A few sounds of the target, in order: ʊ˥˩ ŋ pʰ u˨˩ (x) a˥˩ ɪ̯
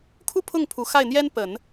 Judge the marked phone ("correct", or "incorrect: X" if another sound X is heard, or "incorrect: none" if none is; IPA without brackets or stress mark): correct